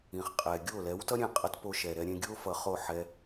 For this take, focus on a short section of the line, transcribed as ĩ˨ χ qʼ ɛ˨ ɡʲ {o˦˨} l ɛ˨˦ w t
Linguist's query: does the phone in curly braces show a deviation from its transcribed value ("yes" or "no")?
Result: no